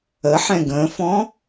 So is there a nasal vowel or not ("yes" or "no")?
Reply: yes